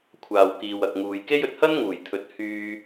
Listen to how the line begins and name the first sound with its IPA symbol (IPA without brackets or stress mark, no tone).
kʷʰ